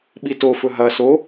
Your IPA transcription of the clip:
ɓ i t o f ɵ ɦ ɐ s o

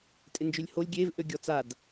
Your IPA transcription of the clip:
tʼ ɪ n d͡ʒ ø lʲ h o lʲ ɡʲ e v ʔ ø ɡʲ ɔ t͡s a d

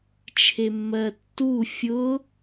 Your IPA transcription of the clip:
t͡ʃʰ e mː ɜ tː u fʲ ʊ

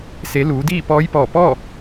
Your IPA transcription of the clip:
s e˩˧ l uː˩˧ d iː˥˨ p ɔː˧˥ j p ɔː˧˩ p ɔː˥˨

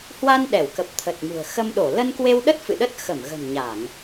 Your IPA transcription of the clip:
h w a˧ n ɗ ɛ˧˩ w k ə˨˩ p̚ t̪ʰ ə˨˩ t̚ m ṳ˨˩ ə̯ x ə˧ m ɗ o˧˩ l ə˧ n k w e˧ w ɗ ə˦˥ t̚ f ɨ̰˧˨ ɗ ə˦˥ t̚ x ə˧˩ m ɣ ə̤˨˩ n ɲ a˧˩˨ ŋ

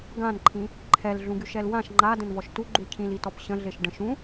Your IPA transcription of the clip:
ɡ ã n ǃʰ ĩ | ǃʰ ɛ l ɮ ũ ɡ y ʃ ɛ l w ã ʃ ŋ͡ǃ a d ə̃ n v ɔ ʃ t u ɡ͡ǃ u cʰ ĩ l i t ɔ p ɕ ə̃ ɮ e ʃ ɖ ə̃ ʃ ũ

